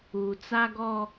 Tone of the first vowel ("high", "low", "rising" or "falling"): low